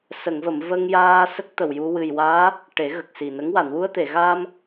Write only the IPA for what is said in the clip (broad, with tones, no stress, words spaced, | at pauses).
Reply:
sə˨˩˨ŋvə˨˩˨m və˧ŋjaː˧ sə˦˥k̚t̪ə˨˩wju˧ wɨ˨˩jwaː˧˥ | ʈe˨˩˦ɣə˨˩k̚si˨˩nə˧˥ŋ wa˨˩˨nwu˧ə̯t̪e˨˩˨ɣaː˧m